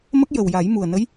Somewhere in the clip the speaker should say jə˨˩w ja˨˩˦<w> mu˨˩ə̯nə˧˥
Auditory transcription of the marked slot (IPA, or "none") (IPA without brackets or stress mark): j